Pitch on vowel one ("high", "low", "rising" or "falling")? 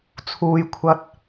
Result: low